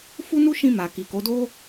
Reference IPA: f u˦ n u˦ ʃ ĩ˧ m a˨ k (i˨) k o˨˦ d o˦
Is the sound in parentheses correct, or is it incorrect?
correct